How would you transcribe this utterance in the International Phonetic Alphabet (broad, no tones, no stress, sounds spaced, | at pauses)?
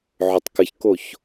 ʕ ʊ tˤ k ə ç k o ç